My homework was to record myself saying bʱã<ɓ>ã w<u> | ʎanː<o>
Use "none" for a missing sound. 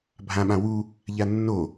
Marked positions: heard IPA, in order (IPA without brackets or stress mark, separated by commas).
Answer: ɓ, u, o